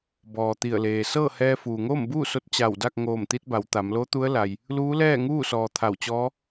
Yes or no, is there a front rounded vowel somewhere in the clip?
no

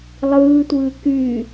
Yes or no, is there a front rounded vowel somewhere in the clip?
yes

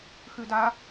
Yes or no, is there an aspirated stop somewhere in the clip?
no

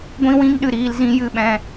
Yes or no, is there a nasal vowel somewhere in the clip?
yes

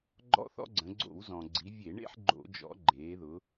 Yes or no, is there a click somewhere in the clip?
yes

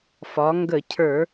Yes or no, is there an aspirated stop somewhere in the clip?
yes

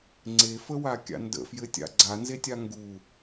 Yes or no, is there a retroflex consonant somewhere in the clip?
no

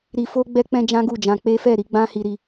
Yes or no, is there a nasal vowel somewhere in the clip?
yes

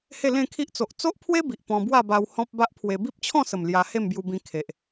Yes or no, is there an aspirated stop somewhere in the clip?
yes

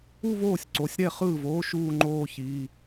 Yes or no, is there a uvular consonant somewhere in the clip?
yes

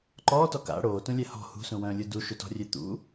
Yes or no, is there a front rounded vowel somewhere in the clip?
yes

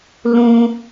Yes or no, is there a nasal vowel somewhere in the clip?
yes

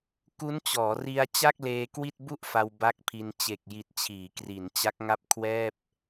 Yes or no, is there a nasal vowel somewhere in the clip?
no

